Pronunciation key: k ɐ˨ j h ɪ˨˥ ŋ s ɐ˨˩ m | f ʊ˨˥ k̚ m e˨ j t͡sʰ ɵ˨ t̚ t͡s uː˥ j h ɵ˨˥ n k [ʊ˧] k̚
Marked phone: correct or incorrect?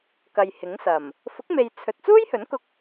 correct